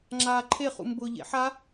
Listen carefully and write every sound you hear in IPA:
ŋ͡ǁaːǃʰe χṵmbʊ ʎḛħa

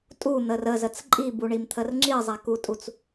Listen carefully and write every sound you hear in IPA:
tʼun̪ər əzət͡s ǃʼibuɳimt̪ʰər ŋ͡ǁizˤakutʼut͡s

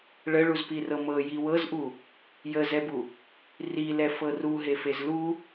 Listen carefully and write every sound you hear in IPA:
ɭəɭuzpirɤ mɤ jiwɤzʔu | jəzɛbu | rilɛ fɤru ɦefezlu

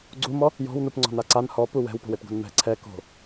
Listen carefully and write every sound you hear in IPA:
ɡ͡ǀumɔ | jɔ̤wnupŋ͡ǀɔ̤na ǀan hɔpu wɛ̤wpo̤wepɡo̤n mɛ̤ ǀʰɛ ko̤

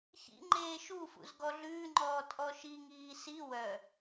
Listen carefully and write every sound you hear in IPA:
çḭ ŋ͡ǃeːʃufṵz ɡɔɮʉːŋ͡ǃɔː tʼɔʃiŋiː si wœ

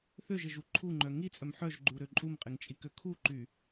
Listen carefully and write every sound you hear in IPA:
θøʒɪʒu ǃʰuŋ͡ǃœ ŋit͡sʼœm ħœʒɡ͡ǃuɾø ǃʼumqʼɪŋt͡ʃʼikø kʰuǃy

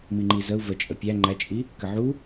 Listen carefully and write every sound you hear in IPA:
miŋ͡ǃizəu̯ vət͡ʃʼə pʲæ ŋ͡ǃæt͡ʃʼi | kəʕu

